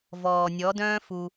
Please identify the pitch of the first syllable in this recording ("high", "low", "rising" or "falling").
low